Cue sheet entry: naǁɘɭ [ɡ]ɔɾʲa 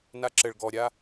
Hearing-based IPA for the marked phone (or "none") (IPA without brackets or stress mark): ɡ